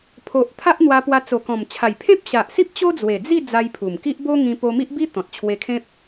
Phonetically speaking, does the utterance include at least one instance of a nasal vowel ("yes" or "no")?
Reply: yes